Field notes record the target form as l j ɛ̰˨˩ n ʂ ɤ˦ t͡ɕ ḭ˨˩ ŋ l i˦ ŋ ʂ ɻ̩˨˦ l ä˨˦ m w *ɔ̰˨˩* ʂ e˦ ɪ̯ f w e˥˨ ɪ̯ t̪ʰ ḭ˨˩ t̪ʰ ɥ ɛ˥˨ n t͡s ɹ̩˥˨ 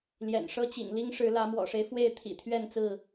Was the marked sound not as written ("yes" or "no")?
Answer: no